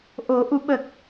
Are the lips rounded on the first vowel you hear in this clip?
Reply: yes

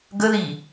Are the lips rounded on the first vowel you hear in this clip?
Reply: no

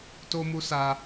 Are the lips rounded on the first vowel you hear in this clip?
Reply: yes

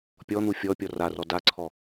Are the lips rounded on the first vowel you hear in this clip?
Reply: yes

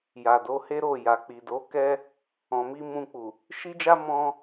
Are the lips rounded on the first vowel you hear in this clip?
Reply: no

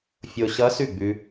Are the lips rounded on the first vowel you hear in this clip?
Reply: yes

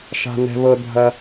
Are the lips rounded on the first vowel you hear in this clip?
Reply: no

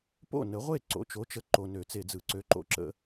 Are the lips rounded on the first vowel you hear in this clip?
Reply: yes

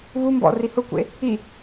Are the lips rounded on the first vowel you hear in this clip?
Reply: yes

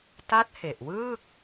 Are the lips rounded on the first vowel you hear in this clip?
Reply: no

